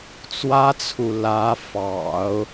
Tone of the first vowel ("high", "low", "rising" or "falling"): high